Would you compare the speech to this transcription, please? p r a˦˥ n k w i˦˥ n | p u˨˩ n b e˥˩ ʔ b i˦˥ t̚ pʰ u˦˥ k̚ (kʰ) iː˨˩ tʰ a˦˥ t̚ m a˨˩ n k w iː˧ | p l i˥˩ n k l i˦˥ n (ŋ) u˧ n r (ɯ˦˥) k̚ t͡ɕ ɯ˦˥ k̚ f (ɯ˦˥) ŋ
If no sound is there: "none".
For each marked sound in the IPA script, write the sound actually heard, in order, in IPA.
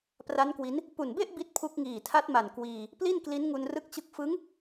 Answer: ŋ, ŋ, ɯ˦˥, ɯ˦˥

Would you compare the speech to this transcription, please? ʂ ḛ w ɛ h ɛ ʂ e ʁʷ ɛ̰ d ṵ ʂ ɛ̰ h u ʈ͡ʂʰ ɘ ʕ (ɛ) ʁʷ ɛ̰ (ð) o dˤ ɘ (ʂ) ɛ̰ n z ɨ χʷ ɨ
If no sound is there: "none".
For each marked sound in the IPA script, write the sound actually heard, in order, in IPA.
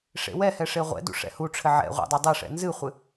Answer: ɛ̰, dˤ, ʂ

